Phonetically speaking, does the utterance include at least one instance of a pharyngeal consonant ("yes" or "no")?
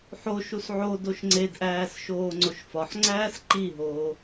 yes